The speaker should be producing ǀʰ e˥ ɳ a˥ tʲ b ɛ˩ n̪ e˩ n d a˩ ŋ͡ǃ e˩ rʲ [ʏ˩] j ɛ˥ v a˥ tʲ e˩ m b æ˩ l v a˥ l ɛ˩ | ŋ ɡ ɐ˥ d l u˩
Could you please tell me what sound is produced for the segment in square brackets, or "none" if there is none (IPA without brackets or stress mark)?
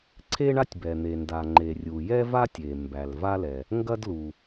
u˩